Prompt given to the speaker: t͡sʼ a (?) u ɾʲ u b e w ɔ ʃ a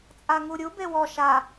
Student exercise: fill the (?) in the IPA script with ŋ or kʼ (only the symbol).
ŋ